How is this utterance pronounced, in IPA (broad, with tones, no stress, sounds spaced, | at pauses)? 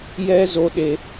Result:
j ɛ˦ z o˧ ɗ e˦